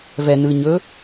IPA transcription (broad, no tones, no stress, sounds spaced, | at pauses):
v ɛ n ɯ ɲ ɵ